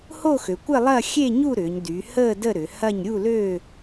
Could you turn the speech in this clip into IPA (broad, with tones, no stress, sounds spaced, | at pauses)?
h o˥˧ x ø˩˧ kʷ ɪ˥˧ lˠ ɐː˥˧ xʲ e˥˧ ɲ u˥˧ ɾ ʏː˩˧ ɲ d y˩˧ h əː˥˧ d ə˥˧ ɾ ʏ˩˧ h ɐ˥˧ ɲ ɾʲ u˥˧ l ø˥˧